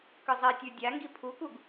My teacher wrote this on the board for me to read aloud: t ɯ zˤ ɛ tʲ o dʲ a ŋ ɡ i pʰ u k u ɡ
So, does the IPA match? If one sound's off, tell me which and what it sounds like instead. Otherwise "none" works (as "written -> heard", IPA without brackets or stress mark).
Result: t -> k